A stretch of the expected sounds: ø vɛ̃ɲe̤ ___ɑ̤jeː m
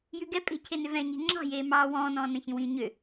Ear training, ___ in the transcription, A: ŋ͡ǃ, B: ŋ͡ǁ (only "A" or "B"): B